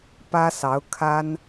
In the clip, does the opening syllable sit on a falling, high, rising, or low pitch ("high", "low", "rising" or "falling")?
high